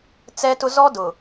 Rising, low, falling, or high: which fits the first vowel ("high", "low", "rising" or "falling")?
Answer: high